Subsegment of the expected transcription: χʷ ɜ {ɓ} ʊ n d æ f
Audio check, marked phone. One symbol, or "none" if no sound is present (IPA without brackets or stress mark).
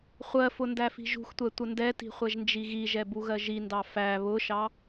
f